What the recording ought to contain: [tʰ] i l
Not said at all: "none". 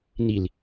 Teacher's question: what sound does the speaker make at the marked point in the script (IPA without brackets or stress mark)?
n